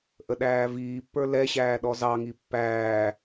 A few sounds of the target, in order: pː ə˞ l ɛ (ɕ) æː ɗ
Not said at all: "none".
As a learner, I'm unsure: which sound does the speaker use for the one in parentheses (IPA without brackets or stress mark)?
ɕ